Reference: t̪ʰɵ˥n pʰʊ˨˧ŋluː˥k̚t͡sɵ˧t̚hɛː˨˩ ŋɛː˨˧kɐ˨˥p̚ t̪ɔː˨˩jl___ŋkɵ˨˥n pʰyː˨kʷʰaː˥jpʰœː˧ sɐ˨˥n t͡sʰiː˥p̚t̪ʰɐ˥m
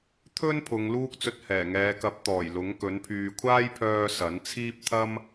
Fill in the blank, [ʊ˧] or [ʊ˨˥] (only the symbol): ʊ˨˥